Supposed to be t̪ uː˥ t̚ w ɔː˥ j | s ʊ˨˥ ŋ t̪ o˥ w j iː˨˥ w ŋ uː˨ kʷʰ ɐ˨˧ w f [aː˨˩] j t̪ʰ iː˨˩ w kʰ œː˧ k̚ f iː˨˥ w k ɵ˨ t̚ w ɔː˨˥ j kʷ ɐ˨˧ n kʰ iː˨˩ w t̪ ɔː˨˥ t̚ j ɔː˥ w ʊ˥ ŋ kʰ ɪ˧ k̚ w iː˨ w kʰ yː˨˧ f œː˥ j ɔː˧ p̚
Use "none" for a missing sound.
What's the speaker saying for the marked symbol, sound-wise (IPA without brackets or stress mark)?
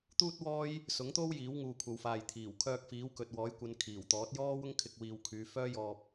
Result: aː˨